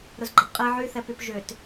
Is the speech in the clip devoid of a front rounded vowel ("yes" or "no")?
no